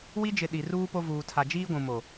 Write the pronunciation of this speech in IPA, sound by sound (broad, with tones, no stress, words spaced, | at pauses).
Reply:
wi˦d͡ʒɪ˨ ɗi˨ruː˦ po˦vuː˨ tʰa˨d͡ʒiː˦ɡʷũ˨mo˨